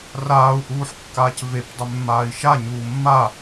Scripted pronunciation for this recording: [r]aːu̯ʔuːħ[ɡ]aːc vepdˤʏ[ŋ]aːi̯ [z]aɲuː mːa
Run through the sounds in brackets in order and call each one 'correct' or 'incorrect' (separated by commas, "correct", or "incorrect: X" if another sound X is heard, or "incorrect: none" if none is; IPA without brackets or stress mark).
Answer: correct, incorrect: kː, incorrect: mː, incorrect: ʃ